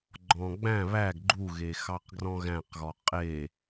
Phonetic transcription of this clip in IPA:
ɡ͡ǃ ɔ̃ ɡ͡b æ̃ β æ ɡ ɡ͡ǃ u ɣ e x ɑ q ɡ r ɔ̃ ɣ æ̃ q ɣ ɔ qʼ e

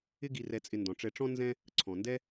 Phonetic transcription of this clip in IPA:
ɪ˦ ɡ i˨ r ɛ˨ t͡sʼ ɪ˨ n d ɔ̃˩ ʈ͡ʂ ɛ˨ ʈ͡ʂ ɔ̃˦ n z ɛ̃˦ | ǀʰ ɔ̃˩ n d ɛ˦

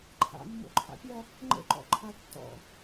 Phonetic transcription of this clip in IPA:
ǃʰ a̰ mː o̰ ǃʰ a̰ pʲ ɐ | ŋ͡ǃ ə̰ ǃ ɔ̰ ǃʰ a tː ɔ̰

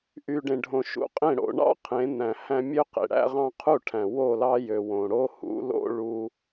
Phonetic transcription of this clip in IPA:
ʔ y˨ ɖ ẽ˨ ɖʱ õ˨ ʃ ṵ˨ qʼ ẽ˦˨ ɽ o̰˨ ɳ ɑ̰˦ qʰ ẽ˨˦ n̪ æ̃˨ h æ̃˦ mʲ ø˦ q ḛ˨ ɽ æ̰˦ ʁ ɑ̃˦ qʰ u˦˨ ʈʰ æ̃˨ w o˦˨ l ɑ˦ j ø˨ w õ˨ ɽ o˦ h ṵ˨˦ l o̰˦ ɭ u˦

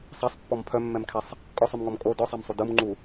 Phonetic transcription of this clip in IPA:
sˤ a sˤ pː ɔ m pʰ œ mː ɛ m kʰ ɛ sˤ | kʼ ɔ sˤ ʉ m ŋ ɔ m kʼ o d ɔ sˤ a m sˤ u d ɯ m ŋ͡ǃ u

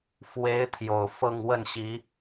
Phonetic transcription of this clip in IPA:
f w e˧˥ ɪ̯ t̪ʰ j o˨˩ ʊ̯ f ɤ˥˧ ŋ w ə˥˩ n ɕ i˧˥

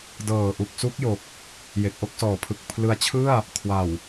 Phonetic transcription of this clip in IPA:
d ɤː˨˩ ʔ u˨˩ k̚ s u˦˥ k̚ j o˨˩ k̚ | j e˨˩ k̚ ʔ o˥˩ k̚ s ɔː˨˩ pʰ ɯ˨˩ k̚ pʰ l ɯ˧ a̯ t͡ɕʰ ɯ˥˩ a̯ | kʰ w a˨˩ w

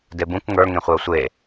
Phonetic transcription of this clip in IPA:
d e b ũ k ŋ ə˞ ŋ ẽ χʷ ɛ o̯ sʷ e

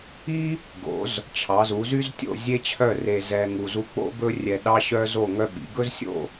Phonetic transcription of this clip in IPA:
i˥ | ɡ o̰˩˧ z | t͡ɕʰ ɑ˩˧ z u˩˧ z y˥ z tʲ o̰˥˧ zʲ e˥ t͡ɕʰ œ˥˧ r e˧ z ɛ˧ ŋ u˧ z u˥ k͡p o̰˥ b ɵ˥ rʲ ɛ˧ ɗ ɑ˥ ɕ œ˥ z o˥˧ ŋ œ˥ ɓ ḭ˩˧ ɡ ɵ˥ z sʲ o̰˥˧

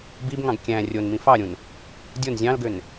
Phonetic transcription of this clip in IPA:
b i b ŋ ɑ̃ ɡ kʲ æ̃ rʲ o n m ĩ f ɑ ɾʲ ũ n | dʲ o n zʲ ɑ̃ l ɡ ø n

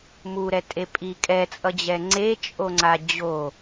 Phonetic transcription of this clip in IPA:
m u ɾ ɛ tʼ e pʼ i kʼ ɛ t͡sʼ ʌ d͡ʑ ɛ ŋ͡ǀ e t͡ʃʼ o ŋ͡ǀ a d͡ʑ o

